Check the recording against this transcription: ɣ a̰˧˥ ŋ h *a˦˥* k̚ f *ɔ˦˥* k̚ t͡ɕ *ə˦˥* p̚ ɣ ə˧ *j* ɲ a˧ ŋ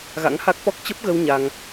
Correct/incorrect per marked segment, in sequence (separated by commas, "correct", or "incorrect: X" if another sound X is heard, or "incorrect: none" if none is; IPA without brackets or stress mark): correct, correct, correct, incorrect: w